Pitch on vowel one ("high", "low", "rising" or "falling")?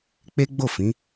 high